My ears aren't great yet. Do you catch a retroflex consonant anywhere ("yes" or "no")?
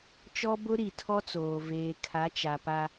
no